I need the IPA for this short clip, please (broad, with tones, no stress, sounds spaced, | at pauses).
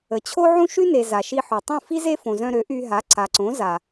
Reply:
ə˨ t͡ɕʰ o˦ ʕ ũ˦ ʃ y˦ n e˨ z a˨ ʃ i˧ ħ o˨ tˤ ũ˦˨ f i˦ z e˦ f õ˧ z œ̃˦ ɾ ø˨˦ ʔ y˧ ɦ a˨˦ ǀ a˨ ǀ õ˨˦ z a˨